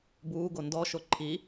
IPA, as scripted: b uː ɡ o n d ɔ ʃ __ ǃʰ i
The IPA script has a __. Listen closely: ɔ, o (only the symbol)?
o